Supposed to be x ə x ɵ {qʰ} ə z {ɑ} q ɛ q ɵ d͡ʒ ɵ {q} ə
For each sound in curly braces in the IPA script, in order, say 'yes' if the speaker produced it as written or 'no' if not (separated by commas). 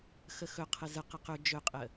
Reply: yes, no, no